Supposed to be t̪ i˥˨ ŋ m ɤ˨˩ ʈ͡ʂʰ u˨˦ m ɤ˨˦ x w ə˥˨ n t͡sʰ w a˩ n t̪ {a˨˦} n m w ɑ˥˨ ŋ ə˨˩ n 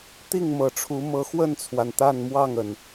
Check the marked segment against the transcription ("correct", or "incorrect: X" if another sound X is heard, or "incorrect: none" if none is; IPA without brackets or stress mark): incorrect: a˥˨